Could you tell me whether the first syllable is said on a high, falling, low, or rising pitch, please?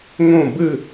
falling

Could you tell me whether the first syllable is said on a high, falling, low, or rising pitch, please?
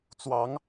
rising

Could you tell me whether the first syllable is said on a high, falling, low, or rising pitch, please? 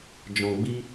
low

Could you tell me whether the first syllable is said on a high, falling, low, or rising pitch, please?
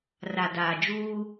low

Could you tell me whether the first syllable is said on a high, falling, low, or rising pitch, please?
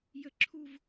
high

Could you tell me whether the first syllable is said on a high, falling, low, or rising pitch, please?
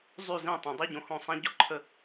falling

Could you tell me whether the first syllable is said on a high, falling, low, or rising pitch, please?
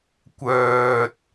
low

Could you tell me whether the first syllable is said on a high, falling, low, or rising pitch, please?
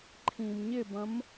low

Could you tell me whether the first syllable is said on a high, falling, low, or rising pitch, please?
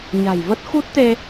low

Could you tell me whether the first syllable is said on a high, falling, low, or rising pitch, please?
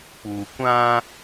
low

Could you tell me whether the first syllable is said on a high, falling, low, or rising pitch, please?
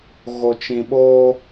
low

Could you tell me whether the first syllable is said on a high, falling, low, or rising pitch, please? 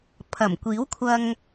low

